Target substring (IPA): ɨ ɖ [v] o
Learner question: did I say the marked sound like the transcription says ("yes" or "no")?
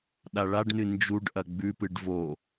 yes